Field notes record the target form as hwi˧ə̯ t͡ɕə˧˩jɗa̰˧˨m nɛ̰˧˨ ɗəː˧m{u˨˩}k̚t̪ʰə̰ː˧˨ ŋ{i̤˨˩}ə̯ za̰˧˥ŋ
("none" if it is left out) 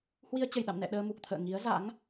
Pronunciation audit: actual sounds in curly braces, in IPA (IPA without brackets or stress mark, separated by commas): u˨˩, i˨˦